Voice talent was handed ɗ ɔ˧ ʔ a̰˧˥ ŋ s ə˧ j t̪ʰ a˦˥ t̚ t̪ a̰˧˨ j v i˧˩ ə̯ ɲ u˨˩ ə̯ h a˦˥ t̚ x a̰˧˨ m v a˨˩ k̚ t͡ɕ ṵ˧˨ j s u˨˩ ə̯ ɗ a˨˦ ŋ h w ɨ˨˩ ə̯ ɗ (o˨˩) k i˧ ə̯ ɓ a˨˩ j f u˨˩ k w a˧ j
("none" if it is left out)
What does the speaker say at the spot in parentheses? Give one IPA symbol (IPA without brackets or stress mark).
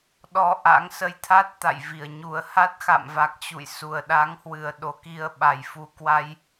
o˨˦